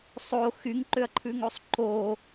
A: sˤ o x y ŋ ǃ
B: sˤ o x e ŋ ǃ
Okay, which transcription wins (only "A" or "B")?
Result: A